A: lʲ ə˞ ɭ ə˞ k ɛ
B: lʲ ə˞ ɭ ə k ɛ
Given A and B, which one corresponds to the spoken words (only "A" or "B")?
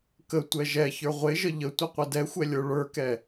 A